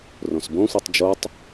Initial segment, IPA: r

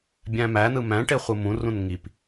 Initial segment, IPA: bʲ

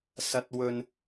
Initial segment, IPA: s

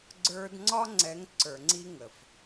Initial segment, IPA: ɡ͡ǀ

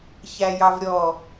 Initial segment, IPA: ç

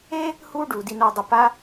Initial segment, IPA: e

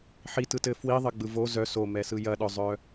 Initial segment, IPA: ħ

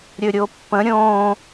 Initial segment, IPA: ɾʲ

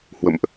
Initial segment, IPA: h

